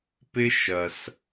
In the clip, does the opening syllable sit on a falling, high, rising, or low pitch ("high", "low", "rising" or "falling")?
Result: high